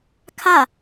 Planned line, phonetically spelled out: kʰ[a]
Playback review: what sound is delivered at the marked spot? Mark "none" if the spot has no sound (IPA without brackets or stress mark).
a